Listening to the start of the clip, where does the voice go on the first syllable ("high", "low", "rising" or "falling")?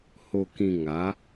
low